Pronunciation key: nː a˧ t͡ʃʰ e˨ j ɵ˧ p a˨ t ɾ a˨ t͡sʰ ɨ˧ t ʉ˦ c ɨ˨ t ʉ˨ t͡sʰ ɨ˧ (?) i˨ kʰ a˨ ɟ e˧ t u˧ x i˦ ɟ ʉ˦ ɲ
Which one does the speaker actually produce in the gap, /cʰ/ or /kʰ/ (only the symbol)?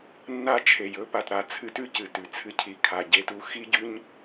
cʰ